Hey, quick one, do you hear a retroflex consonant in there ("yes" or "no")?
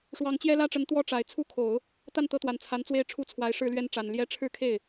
yes